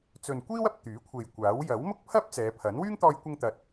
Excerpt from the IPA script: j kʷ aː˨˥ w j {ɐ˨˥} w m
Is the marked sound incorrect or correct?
correct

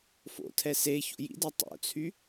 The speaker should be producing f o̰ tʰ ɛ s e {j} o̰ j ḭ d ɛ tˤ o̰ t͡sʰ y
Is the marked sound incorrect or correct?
incorrect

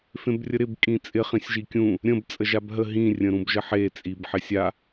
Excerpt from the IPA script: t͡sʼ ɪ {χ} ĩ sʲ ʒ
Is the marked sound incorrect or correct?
correct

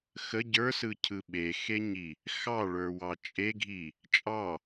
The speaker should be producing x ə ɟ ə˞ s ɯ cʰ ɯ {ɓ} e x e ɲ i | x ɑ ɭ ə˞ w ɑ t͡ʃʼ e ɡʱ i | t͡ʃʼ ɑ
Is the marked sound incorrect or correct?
correct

